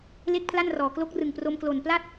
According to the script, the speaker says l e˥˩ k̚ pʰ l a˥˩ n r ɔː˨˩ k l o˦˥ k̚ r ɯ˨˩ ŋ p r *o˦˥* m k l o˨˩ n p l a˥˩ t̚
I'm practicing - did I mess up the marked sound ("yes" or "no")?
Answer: yes